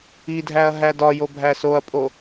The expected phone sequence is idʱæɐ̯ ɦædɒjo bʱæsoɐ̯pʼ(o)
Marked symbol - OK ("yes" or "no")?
yes